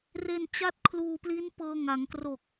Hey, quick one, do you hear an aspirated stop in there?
yes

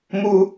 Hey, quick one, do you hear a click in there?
no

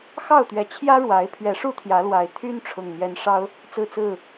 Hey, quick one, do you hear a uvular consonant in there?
no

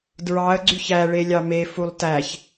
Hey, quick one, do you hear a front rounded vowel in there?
yes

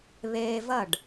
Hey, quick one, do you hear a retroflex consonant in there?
yes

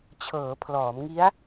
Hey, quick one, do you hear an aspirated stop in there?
yes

